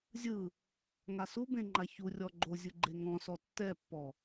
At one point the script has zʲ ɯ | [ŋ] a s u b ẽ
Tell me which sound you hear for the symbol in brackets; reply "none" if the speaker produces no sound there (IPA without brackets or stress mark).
ŋ